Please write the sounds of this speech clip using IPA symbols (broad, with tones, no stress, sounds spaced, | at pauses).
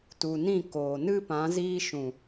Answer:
t u˨ n ĩ˦˨ k oː˨ n ɨ˦ p ã˨˦ z iː˧ ʃ ũ˨